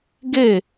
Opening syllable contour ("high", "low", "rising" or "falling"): falling